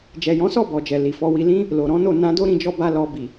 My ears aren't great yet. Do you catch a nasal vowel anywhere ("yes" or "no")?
yes